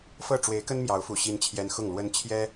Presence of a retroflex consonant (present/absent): present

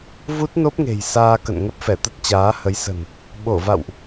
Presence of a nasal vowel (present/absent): absent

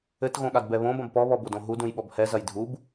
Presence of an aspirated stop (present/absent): absent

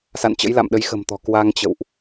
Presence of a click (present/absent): absent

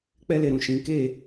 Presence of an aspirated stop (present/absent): absent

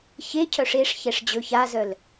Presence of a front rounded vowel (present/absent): present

